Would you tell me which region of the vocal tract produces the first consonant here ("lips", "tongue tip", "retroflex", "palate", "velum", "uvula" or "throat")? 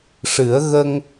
retroflex